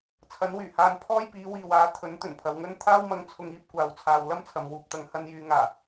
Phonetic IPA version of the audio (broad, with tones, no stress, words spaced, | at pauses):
t͡sʰɐ˨˥nwyː˨˩haː˧n pʰɔː˥jpiː˨˥wiː˨waː˨˥ t̪ʰɵ˨˥nt̪ɵ˨˩npʰɐ˨wŋɵ˥n t̪ʰaː˥wmɐ˧ŋt͡sʰʊ˧ŋiː˧p̚ kʷaː˧wt͡sʰaː˧w lɐ˥mt͡sʰɐ˨mwuː˨p̚t̪ɐ˨˧ŋ hɐ˧njyː˨˧ŋaː˨˩